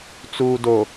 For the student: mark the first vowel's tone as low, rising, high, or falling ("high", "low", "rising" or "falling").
low